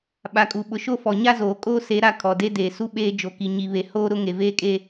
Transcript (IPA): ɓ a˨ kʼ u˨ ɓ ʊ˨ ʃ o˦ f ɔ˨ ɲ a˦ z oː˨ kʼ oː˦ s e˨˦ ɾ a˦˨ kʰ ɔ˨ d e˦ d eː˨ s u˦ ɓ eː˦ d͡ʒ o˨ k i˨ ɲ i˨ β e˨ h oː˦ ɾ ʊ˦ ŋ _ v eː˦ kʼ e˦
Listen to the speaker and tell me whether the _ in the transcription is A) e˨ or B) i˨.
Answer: A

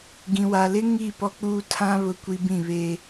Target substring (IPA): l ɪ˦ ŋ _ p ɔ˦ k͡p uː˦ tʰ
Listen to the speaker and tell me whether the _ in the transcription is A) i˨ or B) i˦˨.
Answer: B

